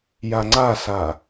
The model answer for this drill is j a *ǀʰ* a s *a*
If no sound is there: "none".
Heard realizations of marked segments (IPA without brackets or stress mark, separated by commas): ŋ͡ǀ, a